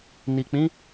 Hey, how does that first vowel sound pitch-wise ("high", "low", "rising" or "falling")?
low